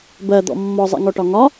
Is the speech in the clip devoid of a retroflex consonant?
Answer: no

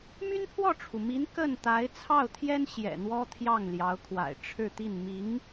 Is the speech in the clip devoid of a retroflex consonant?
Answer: no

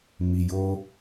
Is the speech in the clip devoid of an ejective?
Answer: yes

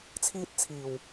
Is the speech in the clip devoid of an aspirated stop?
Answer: no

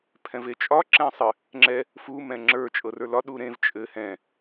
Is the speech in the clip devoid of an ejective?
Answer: no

